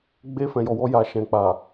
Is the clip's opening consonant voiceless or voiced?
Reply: voiced